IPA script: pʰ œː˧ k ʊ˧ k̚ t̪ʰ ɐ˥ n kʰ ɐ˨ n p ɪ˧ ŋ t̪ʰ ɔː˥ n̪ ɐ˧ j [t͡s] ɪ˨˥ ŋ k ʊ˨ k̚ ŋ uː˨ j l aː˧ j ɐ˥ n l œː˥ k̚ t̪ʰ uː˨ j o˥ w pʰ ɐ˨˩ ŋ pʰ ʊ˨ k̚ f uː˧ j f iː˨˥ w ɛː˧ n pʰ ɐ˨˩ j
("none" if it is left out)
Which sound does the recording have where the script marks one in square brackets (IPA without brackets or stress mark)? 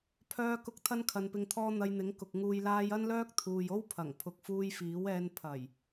n̪